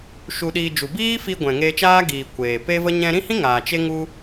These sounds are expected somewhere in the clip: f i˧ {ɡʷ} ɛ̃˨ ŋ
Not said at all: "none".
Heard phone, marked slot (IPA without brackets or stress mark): ɡʷ